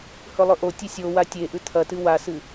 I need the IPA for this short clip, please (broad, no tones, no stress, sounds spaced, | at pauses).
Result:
h ɵ lˠ ɵ ʔ o tʲ ɨ sʲ o w a tʲ e ʔ ʉ t̪ʰ ɐ t ɨ w a s ɨ